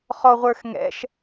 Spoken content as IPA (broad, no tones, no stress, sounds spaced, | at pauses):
χ ɔ ʁʷ ə˞ x ŋ ɛ̰ ʃ